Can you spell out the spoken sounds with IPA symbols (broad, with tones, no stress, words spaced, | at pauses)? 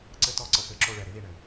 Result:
ǀɘ˦tɔ˦˨ ǀə˧pɘ˨˦ǁo˧ɭɛ˨ ɾɪ˨˦ði˨ɳɘ˨